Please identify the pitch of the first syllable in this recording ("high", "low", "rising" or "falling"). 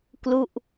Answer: falling